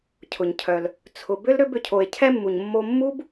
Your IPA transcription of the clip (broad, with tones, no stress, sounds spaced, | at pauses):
cʰ ʊ˩ ɲ cʰ œ˨ l | t͡sʰ ʊ˨ b ʏ˥ l ɾ ʏ˦ b ʏ˩ cʰ o˨ e̯ cʰ ɛ˦ mː u˩ ɲ mː o˦ mː u˥ b